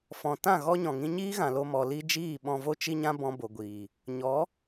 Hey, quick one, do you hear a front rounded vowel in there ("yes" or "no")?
no